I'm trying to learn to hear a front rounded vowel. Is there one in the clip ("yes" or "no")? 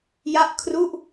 no